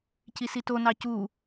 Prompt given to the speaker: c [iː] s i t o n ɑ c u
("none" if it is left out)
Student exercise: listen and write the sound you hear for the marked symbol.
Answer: i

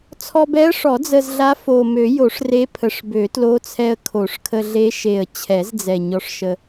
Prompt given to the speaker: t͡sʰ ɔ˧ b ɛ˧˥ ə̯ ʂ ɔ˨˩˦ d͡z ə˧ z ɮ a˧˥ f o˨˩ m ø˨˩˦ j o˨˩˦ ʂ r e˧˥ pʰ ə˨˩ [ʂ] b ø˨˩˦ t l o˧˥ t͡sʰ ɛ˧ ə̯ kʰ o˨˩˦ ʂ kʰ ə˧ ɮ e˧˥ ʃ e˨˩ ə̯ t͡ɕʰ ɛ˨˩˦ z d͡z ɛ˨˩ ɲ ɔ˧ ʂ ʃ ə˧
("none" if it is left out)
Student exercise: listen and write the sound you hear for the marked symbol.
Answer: ʂ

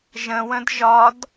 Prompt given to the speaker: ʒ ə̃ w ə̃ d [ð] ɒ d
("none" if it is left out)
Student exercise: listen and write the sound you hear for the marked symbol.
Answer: ʒ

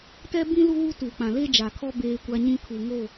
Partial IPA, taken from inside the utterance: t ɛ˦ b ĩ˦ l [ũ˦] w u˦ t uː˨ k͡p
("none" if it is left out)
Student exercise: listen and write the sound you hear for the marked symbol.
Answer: u˦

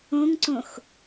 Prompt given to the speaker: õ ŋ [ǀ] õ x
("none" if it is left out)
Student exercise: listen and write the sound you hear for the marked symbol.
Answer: ǀ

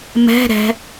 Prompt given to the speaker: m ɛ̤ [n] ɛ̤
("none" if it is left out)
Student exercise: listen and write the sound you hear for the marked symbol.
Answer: ɾ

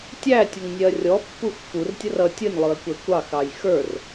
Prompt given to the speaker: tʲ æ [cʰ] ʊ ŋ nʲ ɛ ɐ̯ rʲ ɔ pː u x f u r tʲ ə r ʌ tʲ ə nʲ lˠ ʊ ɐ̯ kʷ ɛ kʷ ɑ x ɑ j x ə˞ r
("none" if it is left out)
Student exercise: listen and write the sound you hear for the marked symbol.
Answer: tʲ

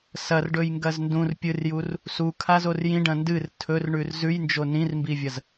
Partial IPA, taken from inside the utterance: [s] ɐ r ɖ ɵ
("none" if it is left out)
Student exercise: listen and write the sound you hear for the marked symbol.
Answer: s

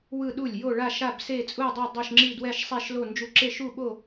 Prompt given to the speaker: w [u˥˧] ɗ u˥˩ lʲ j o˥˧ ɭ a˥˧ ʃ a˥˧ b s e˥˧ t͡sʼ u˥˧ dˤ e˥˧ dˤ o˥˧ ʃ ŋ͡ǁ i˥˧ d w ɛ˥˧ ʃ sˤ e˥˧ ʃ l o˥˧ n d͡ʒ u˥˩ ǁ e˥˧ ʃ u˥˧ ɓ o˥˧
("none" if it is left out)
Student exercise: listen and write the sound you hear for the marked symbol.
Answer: ɯ˥˧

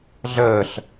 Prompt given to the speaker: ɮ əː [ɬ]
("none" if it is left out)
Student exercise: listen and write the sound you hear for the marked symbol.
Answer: ɬ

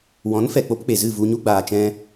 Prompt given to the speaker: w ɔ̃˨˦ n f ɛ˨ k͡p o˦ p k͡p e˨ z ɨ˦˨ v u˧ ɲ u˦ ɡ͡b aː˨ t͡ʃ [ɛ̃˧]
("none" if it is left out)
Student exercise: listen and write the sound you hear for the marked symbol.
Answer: ɛ̃˧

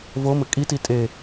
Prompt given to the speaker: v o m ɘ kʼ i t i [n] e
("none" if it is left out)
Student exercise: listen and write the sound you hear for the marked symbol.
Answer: tʼ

